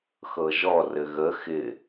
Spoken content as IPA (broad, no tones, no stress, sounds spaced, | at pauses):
x ɤ ʒ ɔ r ɘ ɣ ə x ɪ